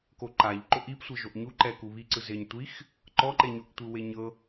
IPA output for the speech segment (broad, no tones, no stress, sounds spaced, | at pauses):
k o ǃ a ʎ ǃ o ʔ i p sʷ ɤ ʒ o ʔ ɲ u ǃ ɛ k u β i ǀ ɯ z e ɲ tʷ i x | ǃ ɔ ǃ e ɲ o ʔ tʷ ɯ w e ɲ ɤ